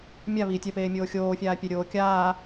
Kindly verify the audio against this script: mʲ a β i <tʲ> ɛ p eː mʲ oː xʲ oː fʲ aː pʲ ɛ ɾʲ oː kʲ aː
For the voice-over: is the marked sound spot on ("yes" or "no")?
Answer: yes